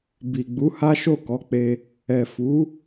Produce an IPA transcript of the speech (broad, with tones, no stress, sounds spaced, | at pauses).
b i˨ ɡ͡b u˨˦ h a˦ ʃ o˦˨ k ɔ˨˦ k͡p e˧ | ɛ˨ f u˨˦